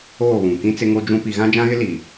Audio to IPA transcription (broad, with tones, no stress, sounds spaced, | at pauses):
oː˦˨ β ũ˨ k ĩ˦ t͡s ɪ˦ ŋ o˦ d͡ʒ ũ˦ p i˨ ɣ ã˦ d͡ʒ ã˦ ɣ ɪ˦ l i˨